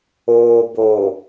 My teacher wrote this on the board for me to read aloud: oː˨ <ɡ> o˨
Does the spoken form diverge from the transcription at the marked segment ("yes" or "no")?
yes